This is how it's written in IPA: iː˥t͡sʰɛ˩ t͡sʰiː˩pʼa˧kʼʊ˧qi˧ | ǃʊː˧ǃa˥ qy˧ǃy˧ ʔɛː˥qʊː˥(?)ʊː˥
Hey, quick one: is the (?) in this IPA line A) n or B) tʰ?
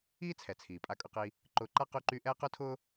B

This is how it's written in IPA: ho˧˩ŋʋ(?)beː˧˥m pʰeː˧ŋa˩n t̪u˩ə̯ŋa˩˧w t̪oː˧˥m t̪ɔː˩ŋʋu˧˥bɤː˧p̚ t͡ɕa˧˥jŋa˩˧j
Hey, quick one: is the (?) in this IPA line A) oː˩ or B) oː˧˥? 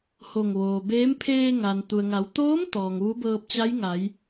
A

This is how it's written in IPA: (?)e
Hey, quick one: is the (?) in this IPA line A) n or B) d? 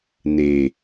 A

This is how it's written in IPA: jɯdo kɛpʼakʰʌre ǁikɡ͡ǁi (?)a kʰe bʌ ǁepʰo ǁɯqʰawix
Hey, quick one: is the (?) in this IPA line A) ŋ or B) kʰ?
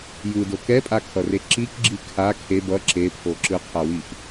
B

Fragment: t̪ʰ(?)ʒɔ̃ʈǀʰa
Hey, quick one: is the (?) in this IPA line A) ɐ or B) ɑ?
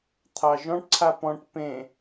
B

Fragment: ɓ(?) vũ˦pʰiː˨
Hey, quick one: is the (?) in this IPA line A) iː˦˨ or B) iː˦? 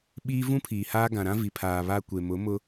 B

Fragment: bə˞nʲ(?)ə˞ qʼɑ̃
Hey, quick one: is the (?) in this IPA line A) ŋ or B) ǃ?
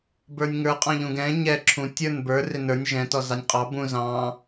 A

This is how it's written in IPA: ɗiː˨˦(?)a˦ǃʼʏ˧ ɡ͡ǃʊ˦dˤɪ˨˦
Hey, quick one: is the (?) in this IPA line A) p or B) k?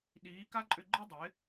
B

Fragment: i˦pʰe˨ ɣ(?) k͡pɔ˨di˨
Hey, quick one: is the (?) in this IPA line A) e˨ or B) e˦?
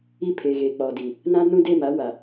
A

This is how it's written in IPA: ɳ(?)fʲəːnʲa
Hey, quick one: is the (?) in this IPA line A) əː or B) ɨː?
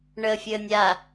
A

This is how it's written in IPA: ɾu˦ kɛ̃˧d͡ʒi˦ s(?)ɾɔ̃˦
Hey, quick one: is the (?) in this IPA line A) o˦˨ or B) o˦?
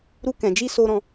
B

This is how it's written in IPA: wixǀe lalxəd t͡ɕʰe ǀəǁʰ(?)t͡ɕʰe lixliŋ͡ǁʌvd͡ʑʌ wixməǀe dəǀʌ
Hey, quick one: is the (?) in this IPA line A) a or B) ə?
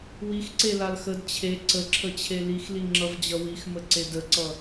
B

